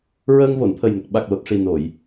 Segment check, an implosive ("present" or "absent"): present